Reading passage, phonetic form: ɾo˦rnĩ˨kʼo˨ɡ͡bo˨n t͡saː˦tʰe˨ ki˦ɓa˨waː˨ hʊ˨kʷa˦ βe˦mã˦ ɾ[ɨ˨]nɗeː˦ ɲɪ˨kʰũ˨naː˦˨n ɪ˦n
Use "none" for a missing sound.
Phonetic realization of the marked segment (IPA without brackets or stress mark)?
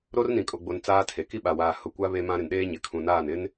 ɪ˨